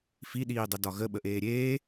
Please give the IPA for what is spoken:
f i ɗ iː dˤ ə d ɒ ɣ ə ɓ ə ʔ eː ɾʲ eː

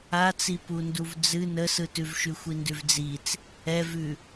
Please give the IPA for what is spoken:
a t͡s i p u n d u v d͡z ɨ n ə s ɯ t ʉ v ʃ ʉ xʷ i n d ʉ v d͡z i t͡s | ɛ v ʉ

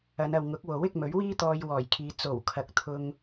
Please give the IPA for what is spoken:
ɐ˨˧ n ɐ˨ w ŋ ʊ˨˥ k̚ w o˨˥ w ɪ˨˥ k̚ m ɵ˨˥ ɥ w iː˥ t̪ ɔː˧ j w ɔː˨˩ j kʰ iː˨˧ t͡s o˨˩ w kʰ ɐ˨ k̚ t̪ʰ ʊ˥ ŋ

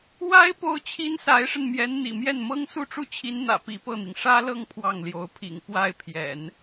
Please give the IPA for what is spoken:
w a˥ ɪ̯ p o˥ ʊ̯ t͡ɕʰ i˥ n s a˧˥ ɪ̯ ʂ ə˧ n m j ɛ˧˥ n n̪ ḭ˨˩ m j ɛ˥˩ n m ɤ˥ ŋ s u˥˧ ʈ͡ʂ u˥˩ t͡ɕʰ i˧˥ n n̪ ä̰˨˩ p i˧˥ p ɤ˥˩ n̪ i˩ ŋ ʂ ä˥ l ɤ˥˧ ŋ pʰ w ɑ˥˩ ŋ l j o˧˥ ʊ̯ pʰ ḭ˨˩ ŋ p w a˥˩ ɪ̯ pʰ j ɛ̰˨˩˦ n

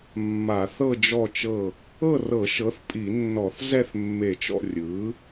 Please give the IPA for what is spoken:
mː a˧˩˧ θ ɤ˦˨ d͡ʒ ɔ˦˨ t͡ʃ ɤ˦˨ | ɤ˦˨ r ɤ˧˩˧ ʃ ɤ˩˥ θ pʼ i˧˩˧ nː ɔ˧˩˧ θ z ɛ˦˨ θ mː e˧˩˧ t͡ʃ ɔ̰˦˨ rʲ ɯ˩˥

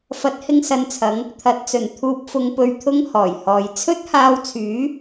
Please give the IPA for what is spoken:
f ɐ˨˥ t̚ h ɪ˧ ŋ s ɐ˨ n t͡sʰ ɐ˨˧ ŋ | t̪ʰ ɐ˨˥ t̚ t͡s ɵ˨˩ n t̪ʰ uː˨ p̚ f ʊ˨ ŋ p ɵ˨ ɥ t̪ʰ ʊ˧ ŋ h ɔː˨˩ j h ɔː˨ j t͡sʰ ɵ˥ t̚ h aː˧ w t͡sʰ yː˨˥

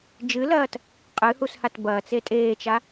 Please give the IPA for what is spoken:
d͡ʒ ɨ l ɐː t | qʼ ɨ h u s h a t b ɐː t͡s e tʼ eː t͡ʃ a

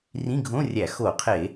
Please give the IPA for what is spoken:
r ĩ˧˥˧ ɡʱ õ˧˥˧ rʲ æ˧˩˧ x o˧˩˧ qʰ e˧˩˧

